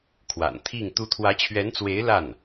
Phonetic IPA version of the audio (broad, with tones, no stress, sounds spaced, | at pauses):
kʰ w a̰˨˩ n t̪ʰ i˥˩ ŋ t̪ u˧˥ t̪ʰ w ä˧˥ t͡ɕʰ ɥ ɛ˧˥ n t͡s w e˧˥ ɪ̯ l a˥˩ n